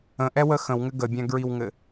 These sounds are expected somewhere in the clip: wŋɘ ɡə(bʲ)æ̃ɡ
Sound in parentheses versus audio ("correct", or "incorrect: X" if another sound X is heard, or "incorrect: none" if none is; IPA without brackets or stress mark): correct